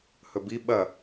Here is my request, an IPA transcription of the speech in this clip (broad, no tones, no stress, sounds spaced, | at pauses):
h ɵ b i ɓ ɐ